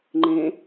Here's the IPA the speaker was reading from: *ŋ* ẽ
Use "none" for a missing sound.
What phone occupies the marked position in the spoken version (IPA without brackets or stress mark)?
ŋ͡ǃ